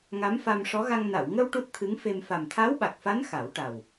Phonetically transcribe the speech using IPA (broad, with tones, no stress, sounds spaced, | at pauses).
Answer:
ŋ a˧˥ m f a˧ m ʂ ɔ˧˥ ɣ a˧ ŋ n a˨˩˨ w ŋ ə˧ w ʈ u˦˥ t̚ t̪ʰ ɨ˧˥ ŋ f e˧ m f a˨˩ m t̪ʰ a˧˥ w ɓ a˨˩ k̚ f a˧˥ n x a˨˩˦ w ʈ a˨˩ w